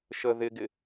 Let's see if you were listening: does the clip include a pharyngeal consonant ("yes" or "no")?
no